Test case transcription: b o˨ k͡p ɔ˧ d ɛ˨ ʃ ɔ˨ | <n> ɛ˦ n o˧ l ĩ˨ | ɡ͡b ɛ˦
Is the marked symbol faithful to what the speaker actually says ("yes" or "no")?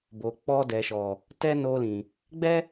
no